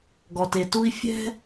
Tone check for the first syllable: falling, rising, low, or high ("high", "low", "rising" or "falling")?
low